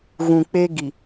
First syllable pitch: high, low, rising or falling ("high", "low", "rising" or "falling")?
low